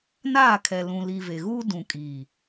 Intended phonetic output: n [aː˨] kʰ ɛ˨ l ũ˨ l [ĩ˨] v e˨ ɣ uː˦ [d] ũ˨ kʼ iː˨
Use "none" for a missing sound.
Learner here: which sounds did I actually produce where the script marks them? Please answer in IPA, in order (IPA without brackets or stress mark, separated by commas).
aː˦˨, i˨, d